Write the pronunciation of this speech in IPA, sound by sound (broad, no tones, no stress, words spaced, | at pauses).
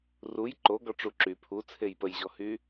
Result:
ruj ǃoɡɔʈ͡ʂu ǁy pʰut͡sʰej pəjʑɔhy